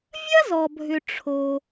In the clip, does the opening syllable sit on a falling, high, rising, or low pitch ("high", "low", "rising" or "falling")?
high